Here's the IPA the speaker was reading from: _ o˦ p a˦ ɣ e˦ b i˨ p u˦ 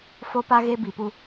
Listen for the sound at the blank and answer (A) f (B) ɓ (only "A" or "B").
A